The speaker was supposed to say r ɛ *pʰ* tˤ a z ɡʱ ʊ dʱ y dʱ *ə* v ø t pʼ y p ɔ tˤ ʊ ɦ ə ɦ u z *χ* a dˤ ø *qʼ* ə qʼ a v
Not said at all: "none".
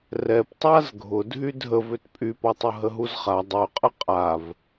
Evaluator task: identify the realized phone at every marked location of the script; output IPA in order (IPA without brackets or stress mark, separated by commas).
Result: p, ə, χ, qʼ